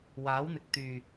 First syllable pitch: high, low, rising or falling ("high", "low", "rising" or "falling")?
rising